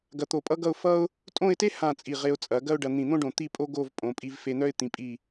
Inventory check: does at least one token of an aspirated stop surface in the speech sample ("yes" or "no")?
no